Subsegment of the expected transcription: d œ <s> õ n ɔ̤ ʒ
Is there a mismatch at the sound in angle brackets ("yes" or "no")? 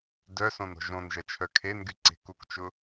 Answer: no